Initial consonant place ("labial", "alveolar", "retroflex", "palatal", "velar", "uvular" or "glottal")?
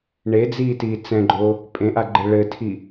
retroflex